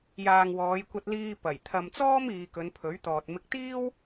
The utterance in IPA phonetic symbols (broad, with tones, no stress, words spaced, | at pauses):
jaː˨ŋwɔː˨˧jkʷɐ˧t̚liː˧ pɐ˨˩j t̪ʰɐ˨mt͡sɔː˥miː˨ kɵ˨˧npʰɵ˨˥ɥt̪ɔː˨t̚ mɪ˨k̚t̪iː˥w